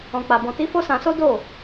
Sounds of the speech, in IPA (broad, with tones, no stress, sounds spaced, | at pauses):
ɔ̃˧ k͡p a˧ b ɔ̃˧ t i˦ f o˦ s ã˧ s o˦ d o˦˨